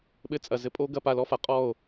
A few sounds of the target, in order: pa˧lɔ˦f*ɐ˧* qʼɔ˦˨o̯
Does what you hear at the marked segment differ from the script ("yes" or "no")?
yes